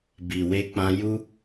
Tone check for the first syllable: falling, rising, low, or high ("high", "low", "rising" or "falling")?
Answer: low